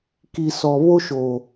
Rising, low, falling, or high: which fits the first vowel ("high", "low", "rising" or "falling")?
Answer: low